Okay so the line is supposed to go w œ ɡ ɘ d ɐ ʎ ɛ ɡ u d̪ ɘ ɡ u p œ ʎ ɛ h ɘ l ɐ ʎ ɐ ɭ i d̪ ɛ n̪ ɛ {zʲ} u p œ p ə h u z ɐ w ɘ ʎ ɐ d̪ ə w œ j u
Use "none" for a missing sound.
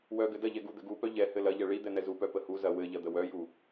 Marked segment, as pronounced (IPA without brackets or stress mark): z